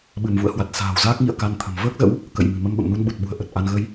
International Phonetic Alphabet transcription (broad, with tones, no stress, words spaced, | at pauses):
ɓɨ˧˩mvṵ˧˨ə̯hwa˨˩t̚ sa̤ː˨˩wzaː˦˥k̚ŋḭ˧˨ə̯ ka˧nt̪ʰə̤˨˩m vəː˦˥k̚zə̰˧˥w | kə̰˧˨jmɨ̤˨˩mə˧m ɓə̰˧˨mnu˧nɓu˨˩t̚ɓṳ˨˩ə̯ ʔə˨˩t̚ʔa˧n ɣə˧j